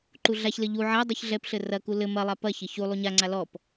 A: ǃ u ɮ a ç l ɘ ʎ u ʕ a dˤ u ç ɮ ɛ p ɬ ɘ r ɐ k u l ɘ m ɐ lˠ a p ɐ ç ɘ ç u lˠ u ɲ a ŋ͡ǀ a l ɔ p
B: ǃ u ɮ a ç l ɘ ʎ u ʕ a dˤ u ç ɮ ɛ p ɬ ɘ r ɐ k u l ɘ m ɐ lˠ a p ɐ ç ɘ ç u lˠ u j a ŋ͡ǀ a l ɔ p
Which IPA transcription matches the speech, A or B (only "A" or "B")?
A